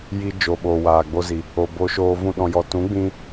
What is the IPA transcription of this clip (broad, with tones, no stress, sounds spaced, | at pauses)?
j i˧ d͡ʒ o˨ ɓ oː˨ w aː˨ ɡ͡b o˧ z i˨ | o˨ b o˧ ʃ oː˧ v ũ˦ ɗ ɔ̃˧ j ɔ˧ t ũ˨˦ ɡ͡b ĩ˧